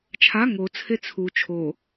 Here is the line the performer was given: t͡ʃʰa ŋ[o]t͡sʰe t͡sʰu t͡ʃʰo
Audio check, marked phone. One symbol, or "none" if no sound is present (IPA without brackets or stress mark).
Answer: o